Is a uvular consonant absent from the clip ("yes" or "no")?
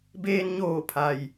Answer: yes